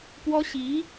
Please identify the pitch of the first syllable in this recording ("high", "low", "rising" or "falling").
high